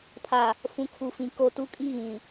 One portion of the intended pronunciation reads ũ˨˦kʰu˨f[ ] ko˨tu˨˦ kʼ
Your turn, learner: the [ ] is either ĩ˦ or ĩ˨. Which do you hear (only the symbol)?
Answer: ĩ˨